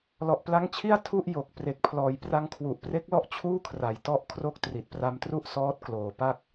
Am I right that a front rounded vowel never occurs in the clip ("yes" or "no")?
yes